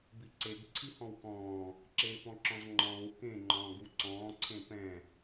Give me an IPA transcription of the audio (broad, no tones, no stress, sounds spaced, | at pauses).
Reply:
b i ǀ e ɡ ǀʰ i h ɔ̃ w k ɔ̃ː | ǁ eː p ɔ̃ ǁ ɔ̃ z ŋ͡ǃ ɔ̃ː w k ẽ ŋ͡ǃ ɔ̃ː ɡ u ǀ ɔ̃ː ǀʰ ẽ p ɛ̃